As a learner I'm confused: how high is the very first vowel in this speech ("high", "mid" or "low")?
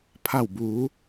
low